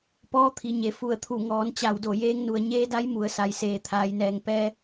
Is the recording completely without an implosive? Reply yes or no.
yes